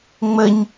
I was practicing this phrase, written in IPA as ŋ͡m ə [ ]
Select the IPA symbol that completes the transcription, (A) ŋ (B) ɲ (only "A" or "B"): B